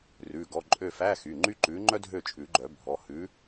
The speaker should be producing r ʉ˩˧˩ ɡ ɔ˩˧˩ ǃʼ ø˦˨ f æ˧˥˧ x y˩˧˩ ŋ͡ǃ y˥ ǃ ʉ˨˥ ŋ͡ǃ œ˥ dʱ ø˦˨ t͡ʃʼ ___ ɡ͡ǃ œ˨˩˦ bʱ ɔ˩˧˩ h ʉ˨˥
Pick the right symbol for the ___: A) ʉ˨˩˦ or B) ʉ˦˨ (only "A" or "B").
A